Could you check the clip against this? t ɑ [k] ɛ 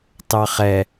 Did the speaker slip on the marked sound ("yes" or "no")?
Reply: yes